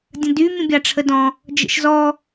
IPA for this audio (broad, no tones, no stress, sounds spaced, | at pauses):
dʲ ə̃ d y mʲ ə̃ bʲ a ʈ͡ʂʰ ə d ɔ̃ | d͡ʒ ə̰ ʃ z ɔ